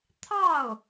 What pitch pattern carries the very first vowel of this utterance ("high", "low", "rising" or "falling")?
falling